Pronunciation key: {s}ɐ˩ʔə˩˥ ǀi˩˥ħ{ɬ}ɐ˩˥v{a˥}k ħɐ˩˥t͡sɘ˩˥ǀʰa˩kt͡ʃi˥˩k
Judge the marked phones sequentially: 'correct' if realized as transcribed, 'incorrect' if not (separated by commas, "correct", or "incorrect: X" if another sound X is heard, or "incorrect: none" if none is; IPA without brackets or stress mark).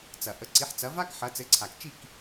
incorrect: t͡s, incorrect: t͡s, correct